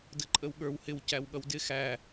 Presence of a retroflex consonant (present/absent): absent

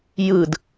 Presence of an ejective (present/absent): absent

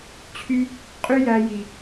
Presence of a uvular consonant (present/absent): present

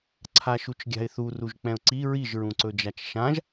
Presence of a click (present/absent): present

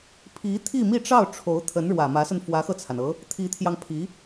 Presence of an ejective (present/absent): absent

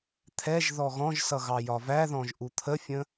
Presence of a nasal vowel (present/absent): present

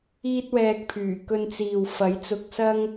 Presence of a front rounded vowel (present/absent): present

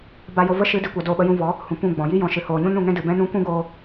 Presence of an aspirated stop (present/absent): absent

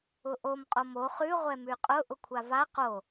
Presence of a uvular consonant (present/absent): present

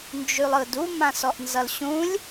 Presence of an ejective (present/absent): absent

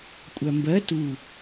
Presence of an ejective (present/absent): present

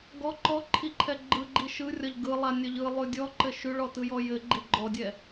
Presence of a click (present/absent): present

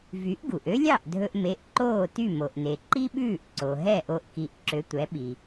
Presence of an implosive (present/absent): present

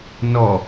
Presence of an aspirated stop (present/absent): absent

